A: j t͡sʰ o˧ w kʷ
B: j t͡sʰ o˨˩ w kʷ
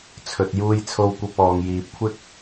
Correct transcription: A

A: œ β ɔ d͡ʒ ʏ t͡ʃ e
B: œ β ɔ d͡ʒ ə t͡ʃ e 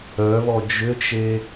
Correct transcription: A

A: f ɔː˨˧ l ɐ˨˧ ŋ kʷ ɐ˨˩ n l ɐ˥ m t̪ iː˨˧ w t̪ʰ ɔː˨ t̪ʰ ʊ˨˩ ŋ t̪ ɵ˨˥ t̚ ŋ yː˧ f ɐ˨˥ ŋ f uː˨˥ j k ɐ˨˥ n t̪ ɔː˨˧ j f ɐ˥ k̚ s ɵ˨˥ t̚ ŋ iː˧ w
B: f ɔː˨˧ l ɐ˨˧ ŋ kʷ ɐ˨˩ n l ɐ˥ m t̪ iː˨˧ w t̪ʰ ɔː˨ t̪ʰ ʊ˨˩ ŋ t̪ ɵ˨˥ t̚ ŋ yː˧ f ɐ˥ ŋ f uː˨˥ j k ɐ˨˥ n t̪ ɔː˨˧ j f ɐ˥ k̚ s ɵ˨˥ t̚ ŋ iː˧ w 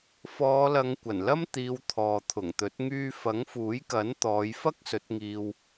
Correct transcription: A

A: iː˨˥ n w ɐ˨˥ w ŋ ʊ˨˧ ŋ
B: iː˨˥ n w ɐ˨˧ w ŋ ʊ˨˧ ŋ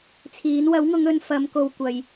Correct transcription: A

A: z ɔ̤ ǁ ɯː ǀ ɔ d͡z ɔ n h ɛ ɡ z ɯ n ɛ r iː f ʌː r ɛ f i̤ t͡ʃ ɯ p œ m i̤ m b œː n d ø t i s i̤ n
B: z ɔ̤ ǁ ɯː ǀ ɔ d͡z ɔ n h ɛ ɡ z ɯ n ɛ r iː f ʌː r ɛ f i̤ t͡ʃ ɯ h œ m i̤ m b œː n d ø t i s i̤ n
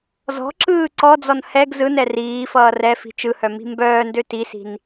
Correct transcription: B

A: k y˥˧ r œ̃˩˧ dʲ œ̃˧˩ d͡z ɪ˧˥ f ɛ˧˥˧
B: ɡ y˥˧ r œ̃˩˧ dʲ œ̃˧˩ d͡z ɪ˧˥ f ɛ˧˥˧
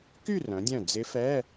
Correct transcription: A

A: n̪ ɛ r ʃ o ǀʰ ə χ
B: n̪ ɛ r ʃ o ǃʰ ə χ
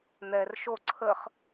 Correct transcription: A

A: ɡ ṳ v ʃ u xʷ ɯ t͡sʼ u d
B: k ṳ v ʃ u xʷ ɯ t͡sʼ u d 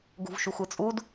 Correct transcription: A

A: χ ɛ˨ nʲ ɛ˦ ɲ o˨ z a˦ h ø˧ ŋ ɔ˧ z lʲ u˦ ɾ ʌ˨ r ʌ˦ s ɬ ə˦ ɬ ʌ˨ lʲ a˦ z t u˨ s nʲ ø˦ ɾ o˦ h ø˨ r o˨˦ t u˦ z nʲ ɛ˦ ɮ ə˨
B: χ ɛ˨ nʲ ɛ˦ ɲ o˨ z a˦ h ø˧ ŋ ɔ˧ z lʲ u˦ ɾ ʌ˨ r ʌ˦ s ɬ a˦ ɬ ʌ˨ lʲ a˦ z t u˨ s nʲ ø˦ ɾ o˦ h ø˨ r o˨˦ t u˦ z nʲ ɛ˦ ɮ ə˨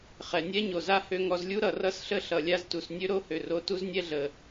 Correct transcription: A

